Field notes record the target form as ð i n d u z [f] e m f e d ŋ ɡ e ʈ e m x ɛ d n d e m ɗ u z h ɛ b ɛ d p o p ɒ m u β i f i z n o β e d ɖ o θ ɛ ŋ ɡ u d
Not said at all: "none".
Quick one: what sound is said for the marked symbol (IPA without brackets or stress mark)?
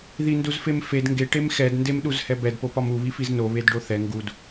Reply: f